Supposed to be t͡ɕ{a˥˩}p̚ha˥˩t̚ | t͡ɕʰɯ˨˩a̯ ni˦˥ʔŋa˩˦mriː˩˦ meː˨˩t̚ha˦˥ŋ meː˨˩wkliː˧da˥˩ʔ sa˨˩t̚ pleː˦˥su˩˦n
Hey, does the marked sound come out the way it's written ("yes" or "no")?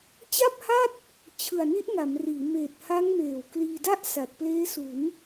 yes